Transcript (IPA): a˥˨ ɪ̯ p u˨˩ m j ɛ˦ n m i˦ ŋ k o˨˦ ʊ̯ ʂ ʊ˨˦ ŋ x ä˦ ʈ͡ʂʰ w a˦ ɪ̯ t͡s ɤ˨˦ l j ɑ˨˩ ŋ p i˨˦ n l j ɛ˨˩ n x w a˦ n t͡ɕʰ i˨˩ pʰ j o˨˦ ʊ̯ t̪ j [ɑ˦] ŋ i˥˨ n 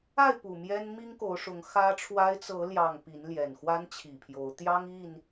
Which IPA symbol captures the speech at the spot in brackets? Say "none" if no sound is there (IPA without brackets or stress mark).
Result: ɑ˦